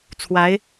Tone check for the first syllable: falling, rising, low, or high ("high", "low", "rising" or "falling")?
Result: rising